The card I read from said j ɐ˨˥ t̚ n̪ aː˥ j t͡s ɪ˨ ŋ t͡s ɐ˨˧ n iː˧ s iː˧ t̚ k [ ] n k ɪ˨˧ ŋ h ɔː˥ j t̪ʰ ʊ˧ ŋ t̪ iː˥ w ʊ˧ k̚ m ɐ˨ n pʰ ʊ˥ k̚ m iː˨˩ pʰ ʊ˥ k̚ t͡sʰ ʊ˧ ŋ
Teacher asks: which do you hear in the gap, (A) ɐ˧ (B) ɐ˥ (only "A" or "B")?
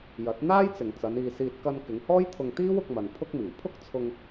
A